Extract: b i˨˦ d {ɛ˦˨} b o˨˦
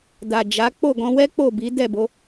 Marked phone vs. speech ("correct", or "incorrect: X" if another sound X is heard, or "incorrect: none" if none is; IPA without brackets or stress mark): correct